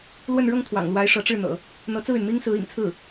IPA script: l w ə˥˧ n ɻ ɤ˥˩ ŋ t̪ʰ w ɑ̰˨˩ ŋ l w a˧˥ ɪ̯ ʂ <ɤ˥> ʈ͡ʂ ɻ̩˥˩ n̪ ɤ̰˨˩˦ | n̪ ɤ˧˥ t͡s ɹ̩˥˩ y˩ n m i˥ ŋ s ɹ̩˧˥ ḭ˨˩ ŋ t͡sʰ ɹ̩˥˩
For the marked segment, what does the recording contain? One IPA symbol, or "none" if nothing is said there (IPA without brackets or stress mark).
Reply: ɤ˧˥